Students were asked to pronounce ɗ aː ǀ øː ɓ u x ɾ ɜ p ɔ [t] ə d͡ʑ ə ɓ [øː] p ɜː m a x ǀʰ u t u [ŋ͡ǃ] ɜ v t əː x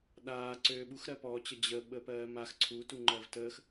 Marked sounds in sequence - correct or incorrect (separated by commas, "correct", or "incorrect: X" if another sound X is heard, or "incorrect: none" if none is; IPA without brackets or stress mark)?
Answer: incorrect: t͡ɕ, incorrect: əː, correct